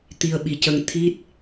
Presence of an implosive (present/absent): present